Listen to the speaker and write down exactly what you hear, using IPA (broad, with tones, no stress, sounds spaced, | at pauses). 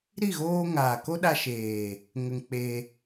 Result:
ɾ i˦˨ ɣ oː˧ ŋ aː˨ k o˦ ɗ a˧ ʃ eː˨ | ŋ ə˧ ŋ k͡p e˧